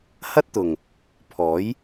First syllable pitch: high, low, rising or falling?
high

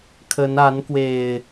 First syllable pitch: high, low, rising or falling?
rising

